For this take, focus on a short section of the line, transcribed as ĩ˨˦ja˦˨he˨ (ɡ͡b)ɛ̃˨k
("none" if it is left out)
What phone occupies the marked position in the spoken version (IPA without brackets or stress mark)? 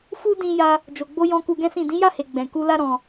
ɡ͡b